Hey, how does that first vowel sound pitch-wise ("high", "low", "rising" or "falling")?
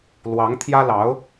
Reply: rising